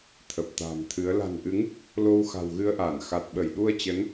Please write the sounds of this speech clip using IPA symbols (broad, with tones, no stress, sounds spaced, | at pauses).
t̪ʰ ə˨˩ p̚ t̪ a̤ː˨˩ m t̪ʰ ɨ˨˦ ə̯ l a̤˨˩ n ʔ ɨ˨˦ ŋ | l o˧ w x a̤˨˩ w ɣ ɨ˧ ə̯ ʔ aː˧˩ n x a˨˩ t̚ ɓ ə˧˩ j ɗ u˧ ə̯ t͡ɕ ə˨˦ n